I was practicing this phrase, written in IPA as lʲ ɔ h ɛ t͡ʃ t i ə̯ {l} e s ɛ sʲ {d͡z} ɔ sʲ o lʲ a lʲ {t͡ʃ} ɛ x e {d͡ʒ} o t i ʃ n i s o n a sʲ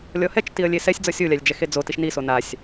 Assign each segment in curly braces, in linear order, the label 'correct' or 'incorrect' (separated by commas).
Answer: incorrect, correct, incorrect, incorrect